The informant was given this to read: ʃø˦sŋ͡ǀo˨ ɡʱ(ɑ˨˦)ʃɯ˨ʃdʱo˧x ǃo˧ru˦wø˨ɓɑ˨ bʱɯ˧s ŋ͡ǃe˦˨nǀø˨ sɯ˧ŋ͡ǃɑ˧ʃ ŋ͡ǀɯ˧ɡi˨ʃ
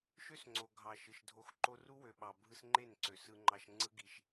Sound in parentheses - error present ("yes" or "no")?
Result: yes